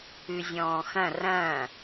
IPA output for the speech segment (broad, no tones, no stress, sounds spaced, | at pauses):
ʉ zʲ ɔ̃ː x ɐ̃ r ɐ̃